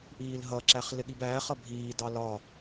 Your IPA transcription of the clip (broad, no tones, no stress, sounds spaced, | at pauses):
ʔ iː l ɦ ʌ ǁ æ χ l ɪ ɠ i b æː χ ʌ bʱ iː d ɑ l ɒ